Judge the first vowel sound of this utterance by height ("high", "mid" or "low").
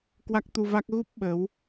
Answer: low